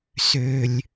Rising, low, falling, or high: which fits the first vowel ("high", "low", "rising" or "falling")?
high